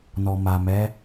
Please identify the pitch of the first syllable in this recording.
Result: low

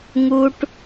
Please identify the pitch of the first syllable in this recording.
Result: high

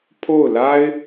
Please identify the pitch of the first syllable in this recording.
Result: falling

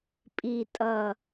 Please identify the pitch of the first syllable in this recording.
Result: low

